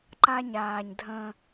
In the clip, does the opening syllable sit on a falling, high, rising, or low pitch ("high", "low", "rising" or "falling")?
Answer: high